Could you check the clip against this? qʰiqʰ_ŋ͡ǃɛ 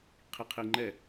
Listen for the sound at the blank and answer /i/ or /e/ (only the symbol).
i